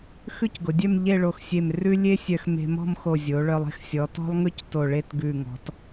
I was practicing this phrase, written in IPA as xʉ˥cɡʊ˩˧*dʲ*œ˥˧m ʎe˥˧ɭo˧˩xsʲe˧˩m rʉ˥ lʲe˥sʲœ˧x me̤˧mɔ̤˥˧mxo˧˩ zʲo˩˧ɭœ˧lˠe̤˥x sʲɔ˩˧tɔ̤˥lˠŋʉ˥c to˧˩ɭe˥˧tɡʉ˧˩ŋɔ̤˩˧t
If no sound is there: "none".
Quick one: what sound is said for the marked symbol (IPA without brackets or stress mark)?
dʲ